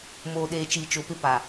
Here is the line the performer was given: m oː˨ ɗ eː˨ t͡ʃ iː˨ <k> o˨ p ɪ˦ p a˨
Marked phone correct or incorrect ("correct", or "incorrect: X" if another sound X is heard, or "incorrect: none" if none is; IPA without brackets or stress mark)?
incorrect: t͡ʃ